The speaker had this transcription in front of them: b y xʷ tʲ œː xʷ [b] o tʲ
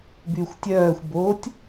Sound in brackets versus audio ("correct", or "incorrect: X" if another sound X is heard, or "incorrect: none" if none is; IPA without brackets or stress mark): correct